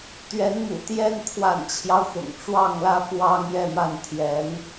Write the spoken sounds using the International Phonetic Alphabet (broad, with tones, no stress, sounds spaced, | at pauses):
t̪ ɥ ɛ˧˥ n m ṵ˨˩ t̪ j ɛ˥ n pʰ w a̰˨˩ n t͡ɕʰ j ɑ˦ ʊ̯ x ʊ̰˨˩ ŋ ʈ͡ʂ w ɑ˥˩ ŋ l ä˥ f w ɑ˥ ŋ j ɛ˥˧ m a˥˩ n t̪ʰ j ɛ˧˥ n